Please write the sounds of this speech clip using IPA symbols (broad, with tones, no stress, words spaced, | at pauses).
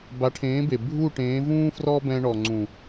ba˨˦ʈʰẽː˨˦be˨ bʱu˦˨ʈẽː˨˦vũː˦ frɔ˦bɛ̃˧ ɳɔ˨ŋ͡ǀũ˨